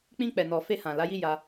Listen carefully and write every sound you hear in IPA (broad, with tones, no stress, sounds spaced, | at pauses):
k͡p ĩ˧ k͡p ɛ˨ n ɔ˨ f e˧ h ã˨ l a˨˦ j i˦ j a˧